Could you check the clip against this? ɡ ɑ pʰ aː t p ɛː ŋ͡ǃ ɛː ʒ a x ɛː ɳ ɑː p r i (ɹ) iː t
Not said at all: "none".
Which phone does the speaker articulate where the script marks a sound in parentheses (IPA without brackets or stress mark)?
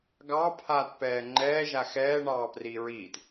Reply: ɹ